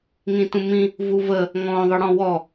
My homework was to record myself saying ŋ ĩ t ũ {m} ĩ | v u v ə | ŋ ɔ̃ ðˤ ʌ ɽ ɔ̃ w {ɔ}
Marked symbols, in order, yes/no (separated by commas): yes, yes